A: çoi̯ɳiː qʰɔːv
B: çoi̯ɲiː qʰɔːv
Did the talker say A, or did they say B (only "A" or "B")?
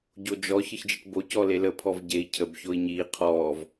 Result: B